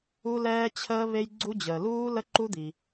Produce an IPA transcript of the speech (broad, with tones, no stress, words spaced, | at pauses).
u˧lɛː˧t͡ɕʰəː˧ βe˧jɡ͡ǀu˧d͡ʑəː˩ luː˧ lə˧ǃu˧ d̪i˩